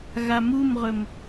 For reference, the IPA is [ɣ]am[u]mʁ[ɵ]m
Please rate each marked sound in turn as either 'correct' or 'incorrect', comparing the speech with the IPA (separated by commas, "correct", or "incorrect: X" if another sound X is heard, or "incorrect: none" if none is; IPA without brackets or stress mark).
correct, correct, correct